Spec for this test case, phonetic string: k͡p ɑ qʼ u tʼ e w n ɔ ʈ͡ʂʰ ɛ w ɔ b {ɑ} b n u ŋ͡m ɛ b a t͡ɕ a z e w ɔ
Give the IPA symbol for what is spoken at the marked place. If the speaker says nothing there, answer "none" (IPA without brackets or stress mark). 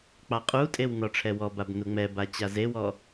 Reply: a